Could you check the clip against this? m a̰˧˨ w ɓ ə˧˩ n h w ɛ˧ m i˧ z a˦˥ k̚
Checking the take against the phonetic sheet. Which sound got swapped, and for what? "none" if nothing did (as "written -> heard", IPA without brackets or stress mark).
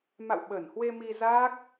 ɛ˧ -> e˧